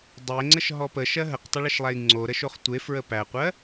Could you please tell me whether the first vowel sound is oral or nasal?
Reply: oral